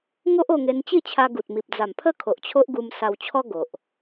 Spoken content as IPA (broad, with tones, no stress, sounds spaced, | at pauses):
ŋ o˦ ʔ o˧ ŋ e˧ n t͡ɕ i˥˧ t͡ɕʰ a˧ ɡ u˨ t̚ m i˨ p̚ d͡z a˨˩ m pʰ ə˥˧ kʰ o˨ ʔ t͡ɕʰ o˦ ʔ ɡ u˧ m s a˧ w t͡ɕʰ ɔ˦ ɡ o˨ ʔ